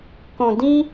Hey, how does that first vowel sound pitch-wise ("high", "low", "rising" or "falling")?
low